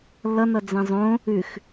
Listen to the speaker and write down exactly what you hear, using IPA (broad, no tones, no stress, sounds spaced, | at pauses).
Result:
lː ʌ n ʌ d͡z ɛ̃ zˤ õ | ʉ x